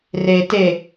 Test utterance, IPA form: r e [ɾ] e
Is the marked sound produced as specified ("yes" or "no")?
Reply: no